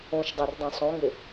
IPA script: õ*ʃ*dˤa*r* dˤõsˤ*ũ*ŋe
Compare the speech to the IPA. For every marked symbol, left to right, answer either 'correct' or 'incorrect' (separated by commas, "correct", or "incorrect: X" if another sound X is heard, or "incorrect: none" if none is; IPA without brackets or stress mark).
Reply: correct, correct, incorrect: õ